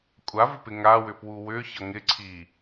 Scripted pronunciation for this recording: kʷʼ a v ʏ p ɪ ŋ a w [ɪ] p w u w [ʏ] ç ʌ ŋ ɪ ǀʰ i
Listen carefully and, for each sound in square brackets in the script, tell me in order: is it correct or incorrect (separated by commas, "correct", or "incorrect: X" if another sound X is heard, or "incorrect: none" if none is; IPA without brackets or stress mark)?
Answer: incorrect: ʏ, correct